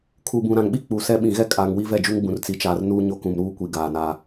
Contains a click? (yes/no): no